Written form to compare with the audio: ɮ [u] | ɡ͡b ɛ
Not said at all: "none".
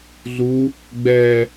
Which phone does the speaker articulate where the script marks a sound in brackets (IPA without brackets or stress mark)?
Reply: u